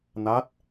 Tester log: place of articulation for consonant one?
alveolar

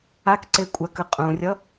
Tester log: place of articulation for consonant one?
velar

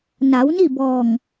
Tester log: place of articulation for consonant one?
alveolar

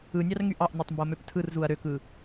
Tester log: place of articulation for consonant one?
alveolar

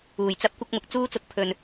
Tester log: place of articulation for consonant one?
palatal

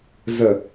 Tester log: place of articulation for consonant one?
alveolar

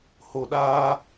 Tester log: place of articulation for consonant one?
glottal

